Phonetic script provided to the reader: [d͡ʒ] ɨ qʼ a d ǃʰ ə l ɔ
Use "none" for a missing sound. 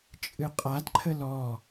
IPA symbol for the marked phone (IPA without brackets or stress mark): t͡ʃʼ